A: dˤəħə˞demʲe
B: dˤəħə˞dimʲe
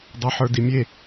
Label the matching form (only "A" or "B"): B